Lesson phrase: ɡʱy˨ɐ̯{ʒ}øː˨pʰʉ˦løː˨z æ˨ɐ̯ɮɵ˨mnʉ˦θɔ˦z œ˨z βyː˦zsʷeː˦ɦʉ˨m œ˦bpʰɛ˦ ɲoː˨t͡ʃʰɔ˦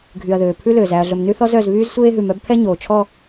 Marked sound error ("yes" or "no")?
yes